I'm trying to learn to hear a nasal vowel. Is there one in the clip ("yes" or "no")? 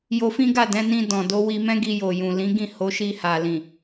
yes